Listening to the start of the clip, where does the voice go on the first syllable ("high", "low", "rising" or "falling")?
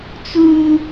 high